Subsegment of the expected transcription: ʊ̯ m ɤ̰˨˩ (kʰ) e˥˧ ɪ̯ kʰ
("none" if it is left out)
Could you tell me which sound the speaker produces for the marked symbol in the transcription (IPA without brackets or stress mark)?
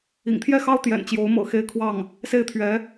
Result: x